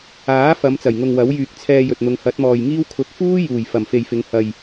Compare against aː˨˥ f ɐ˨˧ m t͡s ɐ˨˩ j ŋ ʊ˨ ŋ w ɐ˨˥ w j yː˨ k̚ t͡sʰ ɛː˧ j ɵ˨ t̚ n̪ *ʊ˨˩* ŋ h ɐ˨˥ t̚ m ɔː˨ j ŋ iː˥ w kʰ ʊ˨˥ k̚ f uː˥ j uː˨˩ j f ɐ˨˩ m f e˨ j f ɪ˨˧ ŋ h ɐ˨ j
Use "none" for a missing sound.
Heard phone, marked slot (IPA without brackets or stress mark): ʊ˨˧